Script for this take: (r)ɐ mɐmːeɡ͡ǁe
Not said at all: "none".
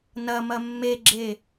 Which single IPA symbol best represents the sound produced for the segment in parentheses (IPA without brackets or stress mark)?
n